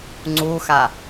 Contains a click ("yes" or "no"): yes